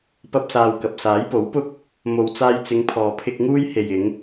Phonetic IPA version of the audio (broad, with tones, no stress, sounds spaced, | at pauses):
p ɐ˥ p̚ s aː˧ w k ɐ˨ p̚ s aː˨˥ j p o˨˥ w p ʊ˥ k̚ | m o˨ w t͡s aː˧ j t͡s ɪ˨˧ ŋ pʰ ɔː˨ pʰ ɪ˧ k̚ ŋ uː˥ j h e˨ j ɪ˨˧ ŋ